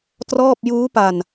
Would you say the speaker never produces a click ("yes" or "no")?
yes